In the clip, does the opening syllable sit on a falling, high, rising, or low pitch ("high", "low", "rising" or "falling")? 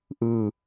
falling